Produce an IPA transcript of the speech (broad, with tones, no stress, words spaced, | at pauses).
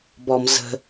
bɔ˧m zə̤˧